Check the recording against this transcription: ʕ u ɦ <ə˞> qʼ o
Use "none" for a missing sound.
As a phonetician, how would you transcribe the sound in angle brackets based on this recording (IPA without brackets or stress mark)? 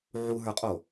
ə˞